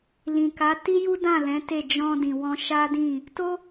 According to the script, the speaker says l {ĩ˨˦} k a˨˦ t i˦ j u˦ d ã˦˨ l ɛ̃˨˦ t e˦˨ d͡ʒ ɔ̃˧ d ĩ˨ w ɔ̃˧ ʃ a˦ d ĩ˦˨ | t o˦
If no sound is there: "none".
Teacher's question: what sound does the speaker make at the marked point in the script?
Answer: ĩ˨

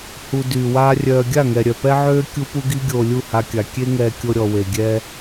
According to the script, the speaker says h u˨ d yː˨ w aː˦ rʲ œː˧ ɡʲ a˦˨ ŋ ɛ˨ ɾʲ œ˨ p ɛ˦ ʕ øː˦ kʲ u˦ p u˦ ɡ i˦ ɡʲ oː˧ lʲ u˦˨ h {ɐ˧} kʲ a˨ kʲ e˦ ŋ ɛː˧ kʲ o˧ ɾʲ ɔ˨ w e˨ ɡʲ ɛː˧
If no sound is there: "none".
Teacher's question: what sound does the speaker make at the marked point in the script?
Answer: a˧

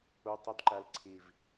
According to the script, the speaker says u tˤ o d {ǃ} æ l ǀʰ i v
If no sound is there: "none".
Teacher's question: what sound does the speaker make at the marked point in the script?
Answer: ǃ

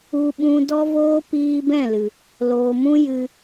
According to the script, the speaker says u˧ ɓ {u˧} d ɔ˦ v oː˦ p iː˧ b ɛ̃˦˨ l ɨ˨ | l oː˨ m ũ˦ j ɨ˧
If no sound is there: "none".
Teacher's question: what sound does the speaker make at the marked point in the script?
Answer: ũ˧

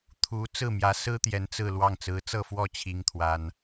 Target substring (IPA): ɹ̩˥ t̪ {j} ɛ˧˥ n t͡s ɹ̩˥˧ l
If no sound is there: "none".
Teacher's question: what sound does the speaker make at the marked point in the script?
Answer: j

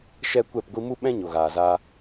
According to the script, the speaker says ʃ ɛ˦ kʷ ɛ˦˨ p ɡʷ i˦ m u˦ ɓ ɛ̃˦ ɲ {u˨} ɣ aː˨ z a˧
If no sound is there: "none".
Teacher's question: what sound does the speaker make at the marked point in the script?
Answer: o˨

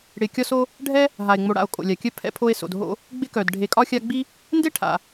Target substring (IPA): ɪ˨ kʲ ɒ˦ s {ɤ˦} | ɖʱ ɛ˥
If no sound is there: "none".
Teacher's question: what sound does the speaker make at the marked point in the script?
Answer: o˦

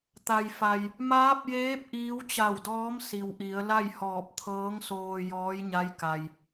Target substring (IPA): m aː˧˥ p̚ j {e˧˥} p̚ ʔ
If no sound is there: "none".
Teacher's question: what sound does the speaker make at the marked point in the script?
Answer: eː˧˥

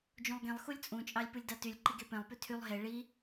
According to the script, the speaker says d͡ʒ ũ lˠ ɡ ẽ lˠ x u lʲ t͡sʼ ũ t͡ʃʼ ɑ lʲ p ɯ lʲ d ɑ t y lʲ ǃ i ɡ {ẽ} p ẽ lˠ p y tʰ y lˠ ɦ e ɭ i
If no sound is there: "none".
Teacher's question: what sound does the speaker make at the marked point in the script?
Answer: e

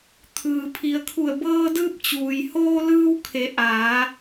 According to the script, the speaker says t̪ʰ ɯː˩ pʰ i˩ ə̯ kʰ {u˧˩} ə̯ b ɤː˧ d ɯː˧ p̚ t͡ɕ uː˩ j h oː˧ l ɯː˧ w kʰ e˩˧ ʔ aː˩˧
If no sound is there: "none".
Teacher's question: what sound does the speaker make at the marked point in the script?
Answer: u˧˩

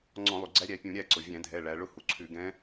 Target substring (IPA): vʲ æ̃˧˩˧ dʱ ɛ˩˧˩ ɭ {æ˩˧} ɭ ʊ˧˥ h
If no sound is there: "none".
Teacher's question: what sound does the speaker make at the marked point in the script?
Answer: æ˩˧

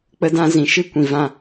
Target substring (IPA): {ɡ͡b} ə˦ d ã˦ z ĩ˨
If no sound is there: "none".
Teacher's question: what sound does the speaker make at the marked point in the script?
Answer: k͡p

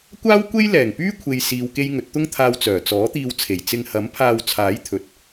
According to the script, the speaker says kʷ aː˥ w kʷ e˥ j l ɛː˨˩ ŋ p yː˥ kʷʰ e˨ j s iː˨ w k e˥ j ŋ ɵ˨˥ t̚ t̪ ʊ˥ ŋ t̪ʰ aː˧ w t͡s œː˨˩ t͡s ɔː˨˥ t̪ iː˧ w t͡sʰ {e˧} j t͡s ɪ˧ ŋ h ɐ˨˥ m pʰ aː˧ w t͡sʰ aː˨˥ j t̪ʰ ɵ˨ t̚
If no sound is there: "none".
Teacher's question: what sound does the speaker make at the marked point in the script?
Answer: e˨˩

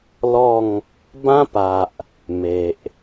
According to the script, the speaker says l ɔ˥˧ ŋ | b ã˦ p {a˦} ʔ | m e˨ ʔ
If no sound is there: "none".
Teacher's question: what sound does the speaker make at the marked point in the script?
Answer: a˨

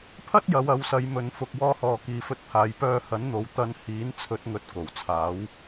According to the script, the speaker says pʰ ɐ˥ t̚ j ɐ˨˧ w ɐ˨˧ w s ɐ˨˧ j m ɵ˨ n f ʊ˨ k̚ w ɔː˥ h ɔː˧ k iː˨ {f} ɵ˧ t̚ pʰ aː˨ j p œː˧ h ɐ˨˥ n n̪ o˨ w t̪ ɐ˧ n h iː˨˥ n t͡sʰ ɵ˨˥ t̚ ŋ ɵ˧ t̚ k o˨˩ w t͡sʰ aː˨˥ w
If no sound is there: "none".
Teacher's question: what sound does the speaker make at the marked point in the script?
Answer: f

